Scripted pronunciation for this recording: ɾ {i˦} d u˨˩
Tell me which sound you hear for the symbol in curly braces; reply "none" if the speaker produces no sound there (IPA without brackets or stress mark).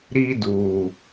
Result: i˦